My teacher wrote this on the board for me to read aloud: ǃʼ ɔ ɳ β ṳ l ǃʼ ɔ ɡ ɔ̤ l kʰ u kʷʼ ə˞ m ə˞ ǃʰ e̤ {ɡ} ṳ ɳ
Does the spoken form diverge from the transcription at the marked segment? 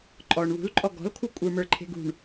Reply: no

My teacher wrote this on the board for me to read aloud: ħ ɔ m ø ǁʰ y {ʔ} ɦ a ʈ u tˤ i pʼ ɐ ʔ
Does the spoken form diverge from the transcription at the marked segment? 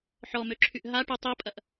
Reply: no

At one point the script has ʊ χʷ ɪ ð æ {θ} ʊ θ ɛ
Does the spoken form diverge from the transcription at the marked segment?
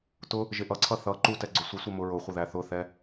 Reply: no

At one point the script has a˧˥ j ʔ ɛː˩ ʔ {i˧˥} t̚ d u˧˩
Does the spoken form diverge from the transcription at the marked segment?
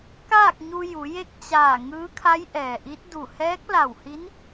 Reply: no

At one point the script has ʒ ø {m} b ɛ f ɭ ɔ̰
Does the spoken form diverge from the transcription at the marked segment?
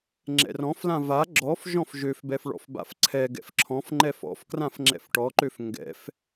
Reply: yes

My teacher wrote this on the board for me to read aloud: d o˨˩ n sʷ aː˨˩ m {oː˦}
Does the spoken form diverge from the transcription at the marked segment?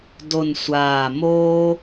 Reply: no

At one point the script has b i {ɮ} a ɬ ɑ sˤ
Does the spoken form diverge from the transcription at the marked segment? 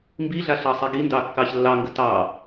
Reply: no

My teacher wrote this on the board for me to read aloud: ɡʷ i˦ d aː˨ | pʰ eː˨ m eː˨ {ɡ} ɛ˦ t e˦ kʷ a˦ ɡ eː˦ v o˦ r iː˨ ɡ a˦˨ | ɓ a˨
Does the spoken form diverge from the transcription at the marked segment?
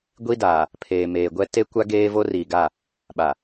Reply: yes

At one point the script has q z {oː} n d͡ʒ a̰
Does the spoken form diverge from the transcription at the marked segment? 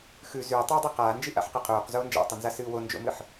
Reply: no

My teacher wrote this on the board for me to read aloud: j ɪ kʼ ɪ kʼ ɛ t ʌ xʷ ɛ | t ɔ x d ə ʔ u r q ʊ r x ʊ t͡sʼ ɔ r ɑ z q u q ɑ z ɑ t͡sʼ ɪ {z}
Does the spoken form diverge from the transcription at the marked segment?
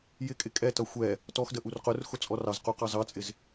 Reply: no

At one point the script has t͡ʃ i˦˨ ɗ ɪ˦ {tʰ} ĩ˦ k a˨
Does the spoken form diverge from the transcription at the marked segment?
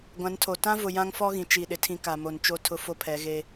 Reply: no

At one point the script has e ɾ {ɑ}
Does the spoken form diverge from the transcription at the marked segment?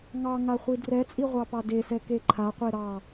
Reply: no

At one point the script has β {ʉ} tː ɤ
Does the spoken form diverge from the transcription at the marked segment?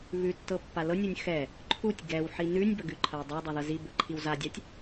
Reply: no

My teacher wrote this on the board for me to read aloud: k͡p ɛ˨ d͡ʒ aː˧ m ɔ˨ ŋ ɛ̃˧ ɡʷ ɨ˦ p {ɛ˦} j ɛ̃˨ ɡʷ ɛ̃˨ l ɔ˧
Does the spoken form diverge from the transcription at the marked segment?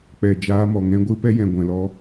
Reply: no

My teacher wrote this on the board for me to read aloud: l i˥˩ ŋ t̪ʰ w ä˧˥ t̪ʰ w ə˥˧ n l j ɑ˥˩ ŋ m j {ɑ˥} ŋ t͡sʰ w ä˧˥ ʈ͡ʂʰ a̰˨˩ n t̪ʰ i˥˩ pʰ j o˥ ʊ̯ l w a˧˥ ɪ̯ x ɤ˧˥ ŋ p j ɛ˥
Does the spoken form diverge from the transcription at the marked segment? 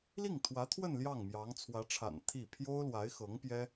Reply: yes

